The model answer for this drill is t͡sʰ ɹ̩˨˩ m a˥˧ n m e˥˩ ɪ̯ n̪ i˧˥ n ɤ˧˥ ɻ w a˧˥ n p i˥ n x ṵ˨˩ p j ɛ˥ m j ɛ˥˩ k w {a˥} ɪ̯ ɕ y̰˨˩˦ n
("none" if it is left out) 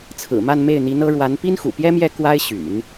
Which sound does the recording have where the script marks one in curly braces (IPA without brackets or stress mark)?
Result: a˥